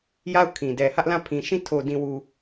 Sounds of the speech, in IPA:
ja˦˨ʊ̯ kʰĩ˨ dɛ˨hä˦ʔlã˦˨pʰĩ˨ ʃĩ˦˨ tʰo˨dĩ˨wu˨

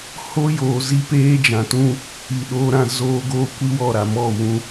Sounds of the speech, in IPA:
ho˦ joː˨ zi˦peː˦d͡ʒã˨tũ˦ | i˨ɗoː˦ɾã˦ zoː˦ ɡoː˦kʷi˦wɔ˦˨ ɾa˨mɔ˦˨ wũ˦

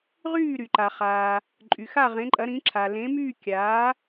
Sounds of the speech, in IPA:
ʁyː˥˩ɾy˩ǃa˩ χaː˩ | ǃʼy˩xa˥˩ʁẽ˩˥ǃʼɐ˩˥ ɾĩ˩˥ǁʰa˩ lẽ˩˥myː˥˩ kʲaː˩˥

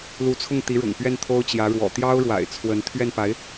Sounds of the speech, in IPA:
lu˧˥t͡sʰʊ˥˩ŋ t̪i˧˥ɻʊ̰˨˩ŋpɥɛ˥˩n t̪ʰo˥ʊ̯t͡ɕjä˧˥ɻwɔ̰˨˩ t̪jɑ˥ʊ̯ɻwa̰˨˩ɪ̯t͡sʰwə˧˥n t̪ʰɥɛ˥˩npa˧˥ɪ̯

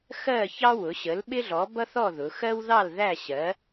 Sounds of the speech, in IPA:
xɜ˥˨çɑ˥wʊ˩˥ ɕə˩˥lɓɪ˥ɮɔ˩˥ bʌ˥θɔ˥˨ ðʊ˩˧xɜ˥wðɑ˥˨l ðæ˥˨ɕɜ˩˥

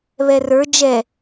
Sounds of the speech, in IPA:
βɛrə˞ d͡ʒɛ

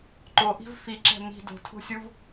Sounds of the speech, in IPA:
ǃoʔi̤v fiǁɛ̤ mi̤ do̤tʰo̤sʲuv

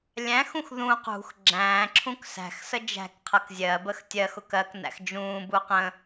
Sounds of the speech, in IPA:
lʲæ̃xũx ðũ qṳx ɡ͡ǁæ̃ːǁʰũk sæ̤xsə d͡ʒæ̤k qʰʌkzʲɜbəx tʲɜxʊk ɜknæ̰x d͡ʒũːbu qə̃

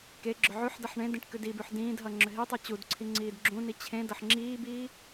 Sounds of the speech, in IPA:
keɡ͡ǁʏ ʕʉħdʌħ ɳẽ dĩʈkʉdibʉħ dĩːdɦʌ ŋ͡ǁʏɦitˤɨ t͡ɕudǀʰi ŋ͡ǀiːdɡ͡ǁũni t͡ɕʰẽdʌħ ŋ͡ǁiːbiː

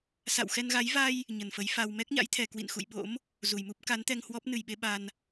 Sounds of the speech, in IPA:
sa̰˧˨wxɛ˧nɣa˨˦j va˧j | ɲə˨˩nfə˨˦j fa˧w mɛ˦˥k̚ɲa̰˧˥jt̪ʰɛ˨˩ kwḭ˧˨nxṵ˧˨jɓo̰˧˥m | zu˨˩jmu˦˥p̚ ka˨˦nt̪ɛ˧ŋhwɔ˦˥p̚ nɨ˨˩jɓe˧ ɓa˧n

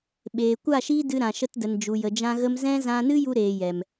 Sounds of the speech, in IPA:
ɓeː˨ kʷa˦˨ʃiː˦dɨ˧ ɾã˨ ʃə˧tdə˨nd͡ʒu˨ jə˨d͡ʒã˧ɣə˧mzɛ̃˦ zã˧nɨ˦ju˧ ɾeː˨jɛ˨m

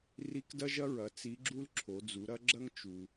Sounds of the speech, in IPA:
ri˧˥kdɐ˥ʒɐ˥ɹɐ˩˧ t͡si˧˥ɡ͡ǁu˥l ǁʰo˩˧d͡zu˩˧ɾɐ˥ɡ͡ǁɐ˥ŋ t͡ʃu˩

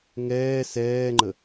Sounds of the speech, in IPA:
ŋɛː sɛːŋ͡ǃə

